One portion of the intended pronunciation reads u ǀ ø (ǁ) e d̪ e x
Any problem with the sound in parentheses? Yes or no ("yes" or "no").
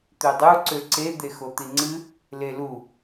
yes